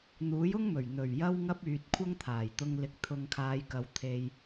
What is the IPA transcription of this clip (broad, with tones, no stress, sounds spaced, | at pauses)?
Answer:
n̪ uː˨˥ j ʊ˥ ŋ m ɵ˨˩ ɥ n̪ ɵ˨˩ ɥ j ɐ˧ w ŋ ɐ˧ p̚ yː˨ t̚ kʷʰ ɐ˥ ŋ t̪ʰ aː˨˩ j t̪ ʊ˧ ŋ l ɪ˨˥ k̚ t̪ʰ ʊ˨ ŋ kʰ aː˨˧ j k ɐ˨ w t̪ʰ e˨ j